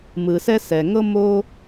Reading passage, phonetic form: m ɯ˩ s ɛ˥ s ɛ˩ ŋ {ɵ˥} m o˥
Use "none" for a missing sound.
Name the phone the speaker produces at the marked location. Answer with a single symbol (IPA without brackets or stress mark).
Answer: ɤ˥